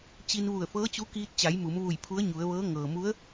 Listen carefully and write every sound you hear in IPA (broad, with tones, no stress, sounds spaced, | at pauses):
t͡ɕ i˧ n ʋ u˧˩ ə̯ f ɤː˧˥ t͡ɕ u˧˥ k iː˧ t̚ t͡ɕ a˩˧ j m u˩˧ m ʋ u˧˩ j pʰ u˧˥ ə̯ ɲ u˩˧ ə̯ ʋ ɤː˧˥ ŋ ɤː˩ m u˧˥ ə̯